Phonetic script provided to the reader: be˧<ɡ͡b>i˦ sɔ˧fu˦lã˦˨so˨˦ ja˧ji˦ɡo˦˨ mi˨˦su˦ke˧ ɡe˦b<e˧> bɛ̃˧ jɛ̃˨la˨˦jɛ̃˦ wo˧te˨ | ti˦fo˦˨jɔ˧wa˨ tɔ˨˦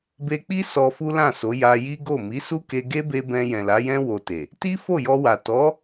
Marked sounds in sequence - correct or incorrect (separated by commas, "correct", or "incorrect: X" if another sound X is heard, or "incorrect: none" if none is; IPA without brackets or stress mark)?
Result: incorrect: k͡p, correct